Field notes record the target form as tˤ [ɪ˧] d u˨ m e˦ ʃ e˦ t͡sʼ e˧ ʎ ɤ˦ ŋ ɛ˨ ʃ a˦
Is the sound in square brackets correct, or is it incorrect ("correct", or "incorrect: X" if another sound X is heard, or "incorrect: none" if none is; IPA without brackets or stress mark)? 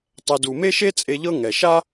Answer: incorrect: ɛ˧